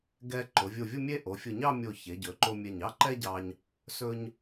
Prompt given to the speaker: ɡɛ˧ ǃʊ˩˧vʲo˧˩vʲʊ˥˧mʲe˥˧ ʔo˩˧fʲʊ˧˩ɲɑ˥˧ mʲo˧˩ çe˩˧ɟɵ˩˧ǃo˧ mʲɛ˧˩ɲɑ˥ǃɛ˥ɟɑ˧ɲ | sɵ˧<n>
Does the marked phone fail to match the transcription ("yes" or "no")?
yes